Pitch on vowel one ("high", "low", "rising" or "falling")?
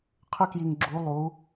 high